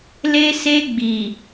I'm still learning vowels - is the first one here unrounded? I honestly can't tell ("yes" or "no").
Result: yes